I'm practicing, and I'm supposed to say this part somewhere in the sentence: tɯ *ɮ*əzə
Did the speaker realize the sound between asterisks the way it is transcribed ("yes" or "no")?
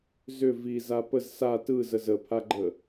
no